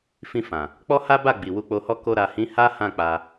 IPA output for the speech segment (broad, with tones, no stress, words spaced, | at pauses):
fĩ˧fã˨ | k͡pɔ˦ha˦ba˦˨ ɡ͡bi˨wu˧k͡po˧hɔ˦ ko˧ɾa˨hĩ˨˦ ha˦ hã˦˨k͡pa˧